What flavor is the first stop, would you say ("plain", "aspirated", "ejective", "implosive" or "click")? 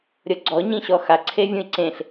click